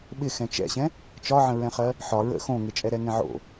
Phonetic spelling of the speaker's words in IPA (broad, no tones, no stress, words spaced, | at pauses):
ɓɪxɛ̃ t͡ʃɛ̰ɕɛ̃ | t͡ʃɒʕə̃ɹɛ̃χɜ | ħɒ ɹə̰ xõŋɪt͡ʃʼɛɾɛ ŋɛ̃ʕo̰